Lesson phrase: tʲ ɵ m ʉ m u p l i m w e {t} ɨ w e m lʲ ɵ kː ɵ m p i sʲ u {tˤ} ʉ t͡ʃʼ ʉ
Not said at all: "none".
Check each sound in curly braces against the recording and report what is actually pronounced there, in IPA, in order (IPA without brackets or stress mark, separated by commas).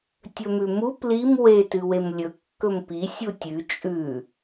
t, tʲ